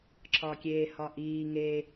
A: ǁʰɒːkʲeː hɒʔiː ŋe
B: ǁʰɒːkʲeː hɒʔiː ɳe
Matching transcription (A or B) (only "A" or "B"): A